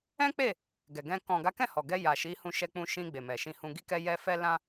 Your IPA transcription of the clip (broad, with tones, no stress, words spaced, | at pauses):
ɛ̃˦k͡pe˦˨ | ɡɛ˨ɡɛ̃˧ kɔ̃˨ɡa˨˦ kɛ̃˦˨hɔ˨ɡɛ˧ ja˨ ʃi˨˦hũ˧ʃɛ˧ k͡pũ˧ʃĩ˧ ɡ͡be˨mɛ˨ʃĩ˧hũ˧ ɡi˧kɛ˧jɛ˧ fɛ˦lã˦